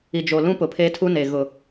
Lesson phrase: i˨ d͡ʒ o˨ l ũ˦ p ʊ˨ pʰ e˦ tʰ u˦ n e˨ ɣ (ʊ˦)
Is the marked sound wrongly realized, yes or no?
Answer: yes